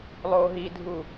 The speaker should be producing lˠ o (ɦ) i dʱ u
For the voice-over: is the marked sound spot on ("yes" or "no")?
yes